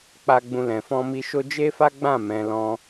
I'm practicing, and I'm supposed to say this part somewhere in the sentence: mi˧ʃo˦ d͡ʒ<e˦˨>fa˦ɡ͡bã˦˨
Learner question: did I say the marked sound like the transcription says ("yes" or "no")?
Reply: no